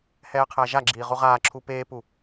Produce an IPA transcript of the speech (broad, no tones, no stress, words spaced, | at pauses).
hɛːqʰæʒaɡ͡ǁiː ʁuʁaːǁʰu peːpu